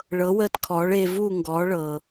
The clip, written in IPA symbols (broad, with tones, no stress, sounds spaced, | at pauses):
ɭ ɤ˩˥ w əː˧ t kʰ ɔː˩˥ ɭ eː˧ v uː˥˩ ŋ ɡ ɔː˩˥ ɭ ɤ˩